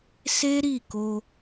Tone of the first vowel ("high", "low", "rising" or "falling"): high